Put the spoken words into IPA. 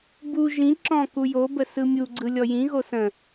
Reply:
b u ʒ ĩ ǁ ɔ̃ k u j o b ə s ɯ mʲ u ɡ͡ǀ ɯ lʲ ɔ j ĩ ɣ o s ə̃

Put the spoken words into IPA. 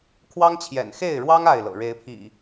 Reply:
kʰ w ɑ˦ ŋ t͡ɕʰ j ɛ̰˨˩ n x e˥˨ ɪ̯ ɻ w ɑ˦ ŋ a˥˨ ɪ̯ l ɤ̰˨˩ ɻ e˨˦ ɪ̯ pʰ ḭ˨˩

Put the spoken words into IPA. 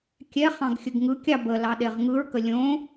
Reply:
kʲ ɛ χ ɑ̃ ɡ xʲ ə ɡ ŋ ɯ kʲ ɑ b ə l ɑ ɗ e ʁ ŋ ɯ ɹ k ə lʲ õ

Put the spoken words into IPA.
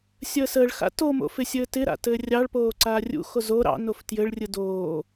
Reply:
sʲ əː s əː ɭ x a̰ t o m o̰ f ɪ sʲ ɘː t ɪ ɾ a̰ t ɘː rʲ ɑ ɭ p oː ǀ aː rʲ ṵ x o z o ɾ ɑ̰ n o f t j ɘ ɭ rʲ ɯ d oː

